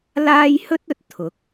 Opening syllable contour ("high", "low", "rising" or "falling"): high